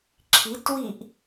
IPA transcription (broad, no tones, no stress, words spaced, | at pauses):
ǁʰitwiʔ